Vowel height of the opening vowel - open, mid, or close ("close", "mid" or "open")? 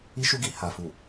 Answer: close